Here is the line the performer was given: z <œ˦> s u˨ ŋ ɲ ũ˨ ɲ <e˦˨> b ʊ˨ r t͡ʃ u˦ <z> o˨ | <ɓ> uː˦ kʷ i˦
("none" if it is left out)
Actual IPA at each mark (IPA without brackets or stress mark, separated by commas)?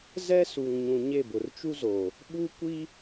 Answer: ɛ˦, e˦˨, z, ɓ